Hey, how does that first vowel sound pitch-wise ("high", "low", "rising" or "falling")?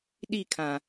falling